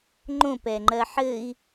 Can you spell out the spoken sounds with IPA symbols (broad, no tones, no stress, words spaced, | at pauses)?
ŋ͡ǃõp ɛŋ͡ǃɜħɘi̯